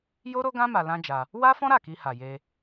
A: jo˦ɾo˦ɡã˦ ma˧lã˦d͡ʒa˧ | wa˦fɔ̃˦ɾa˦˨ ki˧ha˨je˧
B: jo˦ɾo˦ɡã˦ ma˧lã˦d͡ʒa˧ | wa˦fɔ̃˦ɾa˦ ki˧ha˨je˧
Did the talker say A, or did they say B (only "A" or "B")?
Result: A